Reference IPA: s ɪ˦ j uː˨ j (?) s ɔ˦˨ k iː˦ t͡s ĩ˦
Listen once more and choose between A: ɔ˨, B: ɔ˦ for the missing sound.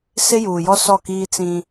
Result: B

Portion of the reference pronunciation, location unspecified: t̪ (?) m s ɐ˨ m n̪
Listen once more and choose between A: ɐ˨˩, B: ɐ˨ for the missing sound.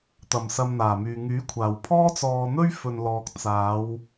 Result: A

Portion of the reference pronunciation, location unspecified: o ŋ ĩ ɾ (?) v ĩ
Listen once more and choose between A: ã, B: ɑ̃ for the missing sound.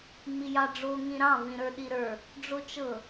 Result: B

